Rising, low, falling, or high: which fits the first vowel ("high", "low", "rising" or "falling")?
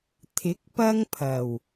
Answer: rising